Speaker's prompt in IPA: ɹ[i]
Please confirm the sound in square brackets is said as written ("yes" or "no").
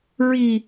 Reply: yes